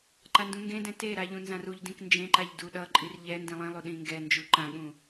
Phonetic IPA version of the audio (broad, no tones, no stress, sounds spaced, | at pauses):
ǃ a n d ũ ŋ ɡ ẽ d ɛ̃ t e ɾ a ʎ ũ n z ã r u ʎ d ĩ k n d͡ʒ ẽ ǃ a ʎ d u ɗ ʌ ǃʼ i r ʎ ɛ n d ĩ lˠ ĩ lˠ u ɗ ĩ ŋ ɡ ɛ n d͡ʒ u ǃ ã ɠ ũ